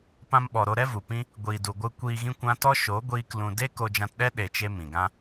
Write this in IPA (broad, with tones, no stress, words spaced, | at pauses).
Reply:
pã˧mɓɔ˨ɾo˧ ɾɛ˦vu˨pĩ˦ | ɡʷiː˨du˨ɡʷɨ˧ kʷiː˧ɣĩ˦kʷã˦ tɔ˦ʃo˨˦ ɡʷiː˦k lũ˧ de˦ ko˧d͡ʒã˧tɗɛ˦ ɗe˧t͡ʃe˦ mĩ˨ɡã˦